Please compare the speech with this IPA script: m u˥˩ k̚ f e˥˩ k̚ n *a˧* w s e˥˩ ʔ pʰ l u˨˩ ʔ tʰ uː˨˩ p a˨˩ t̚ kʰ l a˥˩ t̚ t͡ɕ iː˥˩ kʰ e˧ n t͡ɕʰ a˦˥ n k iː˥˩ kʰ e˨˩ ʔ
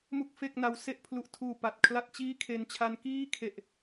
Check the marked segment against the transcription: correct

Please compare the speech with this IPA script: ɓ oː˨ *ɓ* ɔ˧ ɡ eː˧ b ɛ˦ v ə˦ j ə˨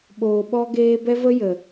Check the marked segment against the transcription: correct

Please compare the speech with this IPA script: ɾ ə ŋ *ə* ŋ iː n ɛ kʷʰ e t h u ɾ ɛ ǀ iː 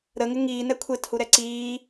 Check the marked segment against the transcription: incorrect: ɪ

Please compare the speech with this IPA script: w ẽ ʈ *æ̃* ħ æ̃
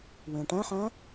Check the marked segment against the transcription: correct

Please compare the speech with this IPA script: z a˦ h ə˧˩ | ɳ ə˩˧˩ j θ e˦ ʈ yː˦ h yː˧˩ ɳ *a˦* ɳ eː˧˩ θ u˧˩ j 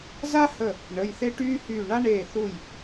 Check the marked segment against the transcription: correct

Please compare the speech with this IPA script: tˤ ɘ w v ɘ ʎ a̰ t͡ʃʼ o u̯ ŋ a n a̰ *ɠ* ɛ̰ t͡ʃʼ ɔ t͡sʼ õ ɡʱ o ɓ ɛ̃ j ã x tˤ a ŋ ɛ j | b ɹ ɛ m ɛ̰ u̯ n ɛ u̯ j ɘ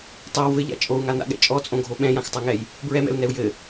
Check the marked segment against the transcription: correct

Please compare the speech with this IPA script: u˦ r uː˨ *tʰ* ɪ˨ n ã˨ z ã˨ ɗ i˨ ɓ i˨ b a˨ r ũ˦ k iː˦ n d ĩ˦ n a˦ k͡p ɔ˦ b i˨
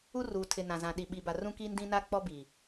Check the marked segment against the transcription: correct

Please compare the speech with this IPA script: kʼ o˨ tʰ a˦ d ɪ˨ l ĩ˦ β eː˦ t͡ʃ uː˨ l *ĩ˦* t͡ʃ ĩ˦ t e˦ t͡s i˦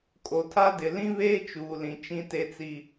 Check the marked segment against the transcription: incorrect: ĩ˨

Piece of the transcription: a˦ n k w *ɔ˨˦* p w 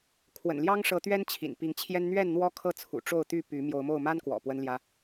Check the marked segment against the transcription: incorrect: ɔ̰˨˩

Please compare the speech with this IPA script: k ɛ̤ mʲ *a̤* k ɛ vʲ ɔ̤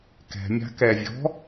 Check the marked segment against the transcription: correct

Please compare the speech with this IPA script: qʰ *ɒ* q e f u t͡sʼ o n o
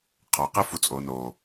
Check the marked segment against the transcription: correct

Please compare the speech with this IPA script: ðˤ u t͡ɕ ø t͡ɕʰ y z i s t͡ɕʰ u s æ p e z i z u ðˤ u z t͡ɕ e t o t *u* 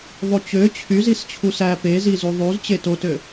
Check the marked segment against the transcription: incorrect: ø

